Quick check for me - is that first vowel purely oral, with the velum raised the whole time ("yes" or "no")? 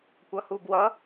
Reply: yes